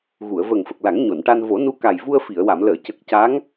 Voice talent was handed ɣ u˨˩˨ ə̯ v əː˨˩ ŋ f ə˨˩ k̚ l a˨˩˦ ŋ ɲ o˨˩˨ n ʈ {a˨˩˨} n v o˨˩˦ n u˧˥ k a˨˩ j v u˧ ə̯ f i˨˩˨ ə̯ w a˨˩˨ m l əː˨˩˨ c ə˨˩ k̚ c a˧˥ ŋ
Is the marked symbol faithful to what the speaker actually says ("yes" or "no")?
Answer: no